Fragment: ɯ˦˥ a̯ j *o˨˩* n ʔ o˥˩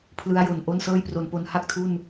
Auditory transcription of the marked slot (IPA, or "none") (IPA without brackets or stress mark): o˨˩